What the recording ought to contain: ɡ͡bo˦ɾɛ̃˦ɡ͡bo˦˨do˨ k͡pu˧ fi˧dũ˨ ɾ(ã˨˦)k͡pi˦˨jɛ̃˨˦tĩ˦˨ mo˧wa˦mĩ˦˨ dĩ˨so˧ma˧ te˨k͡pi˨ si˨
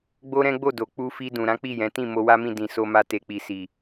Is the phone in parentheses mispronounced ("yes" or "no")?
no